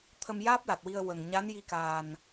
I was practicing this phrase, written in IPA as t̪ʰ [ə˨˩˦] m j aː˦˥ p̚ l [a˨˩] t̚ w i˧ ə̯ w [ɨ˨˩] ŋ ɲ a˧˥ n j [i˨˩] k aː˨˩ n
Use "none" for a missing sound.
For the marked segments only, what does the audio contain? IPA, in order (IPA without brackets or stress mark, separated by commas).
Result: ə˧, a˨˩, ə˨˩, i˧